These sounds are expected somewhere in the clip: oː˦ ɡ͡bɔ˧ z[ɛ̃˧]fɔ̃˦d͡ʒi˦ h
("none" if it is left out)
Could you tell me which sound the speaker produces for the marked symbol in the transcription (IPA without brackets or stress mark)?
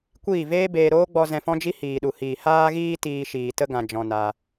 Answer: ɛ̃˧